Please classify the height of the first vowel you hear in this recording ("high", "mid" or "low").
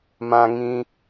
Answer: low